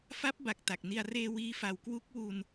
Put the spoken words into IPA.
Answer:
f a˦˥ p̚ b a˨˩ k̚ t a˨˩ k̚ n i˧ a̯ r eː˧ w iː˦˥ f a˧ w k w u˦˥ k̚ w u˧ n

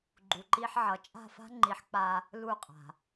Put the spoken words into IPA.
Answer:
ɡ͡ǃ u˨ ǃ i˧ ħ ʕ ʌ˨ t͡ʃʼ a̤˦˨ f a̤˦ ŋ͡ǃ i˨˦ ħ k͡p a˧ | l u˦˨ qʼ a̤˨

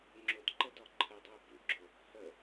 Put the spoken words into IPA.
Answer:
ŋ͡ǁ ʊ d ǃ ə d ɒ ǃʰ ə dˤ ʊ ə̯ b ṵ ɡ͡ǁ ʊ | h ə

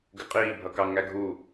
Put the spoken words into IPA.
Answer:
ɡ ɪ qʼ iː bʱ ʌ k ɑ ŋ æ ɡʱ u

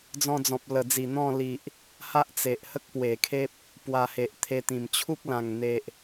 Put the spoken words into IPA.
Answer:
d͡z ɔ̃˧ d͡z ɔ̃˨ p̚ l ə˨˩ d͡z i˨˩ n̪ ɔ̃˥˧ l i˨ ʔ | h a˦ ʔ t͡s e˨ ʔ h ə˦ k̚ p w e˨˩ kʰ e˦ p̚ | p w a˧ h e˨ ʔ t̪ʰ e˧ t̪ ĩ˨˩ m t͡ɕʰ u˦ k̚ l ã˨˩ ŋ n̪ e˨ ʔ

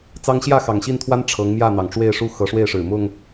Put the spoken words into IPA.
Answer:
t͡s ɑ˦ ŋ ɕ j ä˥˨ x ɑ˨˩ ŋ ɕ i˥˨ n t̪ʰ w a˦ n ʈ͡ʂʰ ɤ˨˦ ŋ m j ä˥˨ n̪ ɑ˩ ŋ ʈ͡ʂ w e˥˨ ɪ̯ ʂ u˦ x ɤ˨˦ ʂ w e˥˨ ɪ̯ ʂ ɻ̩˨˩ m ʊ˥˨ ŋ

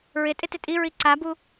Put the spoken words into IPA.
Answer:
ɹ ɪ tʼ ɪ t ɪ tʼ i ɹ i ǀ a b u

